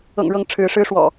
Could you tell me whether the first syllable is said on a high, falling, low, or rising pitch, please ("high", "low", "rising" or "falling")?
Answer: low